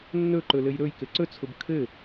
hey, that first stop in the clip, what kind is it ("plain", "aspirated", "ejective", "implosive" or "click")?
click